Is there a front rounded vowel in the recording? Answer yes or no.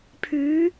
yes